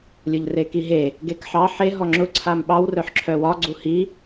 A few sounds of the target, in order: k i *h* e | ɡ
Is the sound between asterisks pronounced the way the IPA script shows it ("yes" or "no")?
no